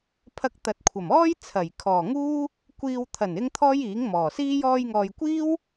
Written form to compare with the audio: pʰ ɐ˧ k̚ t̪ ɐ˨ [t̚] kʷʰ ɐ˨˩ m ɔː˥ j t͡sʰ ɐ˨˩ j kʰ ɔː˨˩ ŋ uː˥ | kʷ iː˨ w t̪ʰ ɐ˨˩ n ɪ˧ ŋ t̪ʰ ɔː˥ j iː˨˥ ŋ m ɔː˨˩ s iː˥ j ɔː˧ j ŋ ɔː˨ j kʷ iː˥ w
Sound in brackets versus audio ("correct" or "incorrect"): correct